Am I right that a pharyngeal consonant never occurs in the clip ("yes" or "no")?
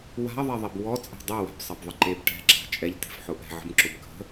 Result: no